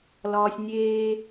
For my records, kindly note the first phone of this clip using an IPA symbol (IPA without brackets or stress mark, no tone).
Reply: l